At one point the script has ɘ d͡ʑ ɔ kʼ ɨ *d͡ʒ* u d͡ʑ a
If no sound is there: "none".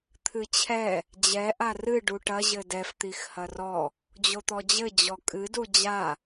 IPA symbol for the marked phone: d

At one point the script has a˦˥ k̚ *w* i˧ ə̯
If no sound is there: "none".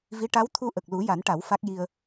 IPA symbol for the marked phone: j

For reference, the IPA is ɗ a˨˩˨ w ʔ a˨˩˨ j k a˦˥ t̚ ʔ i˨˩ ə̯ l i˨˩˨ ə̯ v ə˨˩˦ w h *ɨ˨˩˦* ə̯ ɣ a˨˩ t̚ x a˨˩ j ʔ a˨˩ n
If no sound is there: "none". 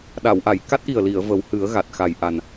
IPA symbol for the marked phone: ɨ˨˩˦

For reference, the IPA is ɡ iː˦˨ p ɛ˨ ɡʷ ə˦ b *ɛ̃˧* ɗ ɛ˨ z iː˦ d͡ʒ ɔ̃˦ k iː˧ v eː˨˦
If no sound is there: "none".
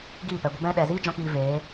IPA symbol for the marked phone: ɛ̃˧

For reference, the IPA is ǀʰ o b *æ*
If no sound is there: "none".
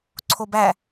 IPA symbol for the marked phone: æ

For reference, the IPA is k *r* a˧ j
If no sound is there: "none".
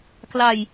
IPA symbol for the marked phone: l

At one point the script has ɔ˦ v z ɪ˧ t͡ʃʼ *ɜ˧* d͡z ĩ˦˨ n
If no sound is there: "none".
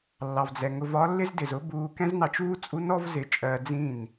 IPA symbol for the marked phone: ɜ˧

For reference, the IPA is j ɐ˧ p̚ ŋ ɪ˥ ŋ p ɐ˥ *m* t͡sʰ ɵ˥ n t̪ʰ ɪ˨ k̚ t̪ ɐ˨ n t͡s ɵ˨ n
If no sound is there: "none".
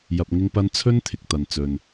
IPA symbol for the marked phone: n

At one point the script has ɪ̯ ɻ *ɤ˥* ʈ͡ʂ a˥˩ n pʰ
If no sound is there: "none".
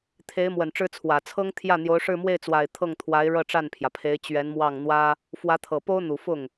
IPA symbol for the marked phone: ɤ˥˧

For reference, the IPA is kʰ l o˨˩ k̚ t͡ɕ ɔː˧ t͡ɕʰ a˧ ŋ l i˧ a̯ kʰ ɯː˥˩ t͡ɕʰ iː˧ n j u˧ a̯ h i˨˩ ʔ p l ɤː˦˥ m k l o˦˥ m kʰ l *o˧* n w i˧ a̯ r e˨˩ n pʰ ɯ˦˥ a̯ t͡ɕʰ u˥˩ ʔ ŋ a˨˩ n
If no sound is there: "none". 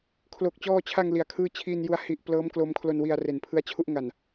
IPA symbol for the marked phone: o˧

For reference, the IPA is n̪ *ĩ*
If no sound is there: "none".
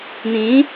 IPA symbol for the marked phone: ĩ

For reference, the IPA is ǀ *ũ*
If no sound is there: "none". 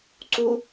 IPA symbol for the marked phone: u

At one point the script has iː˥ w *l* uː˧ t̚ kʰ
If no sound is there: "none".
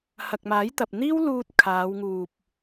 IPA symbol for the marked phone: l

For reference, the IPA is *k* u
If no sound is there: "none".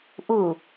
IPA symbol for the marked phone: ʔ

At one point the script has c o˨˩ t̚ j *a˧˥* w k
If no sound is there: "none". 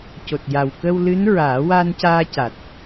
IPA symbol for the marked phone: a˨˩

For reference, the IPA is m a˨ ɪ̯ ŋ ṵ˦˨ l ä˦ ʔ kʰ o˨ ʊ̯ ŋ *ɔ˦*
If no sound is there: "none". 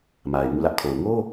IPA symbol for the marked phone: o˦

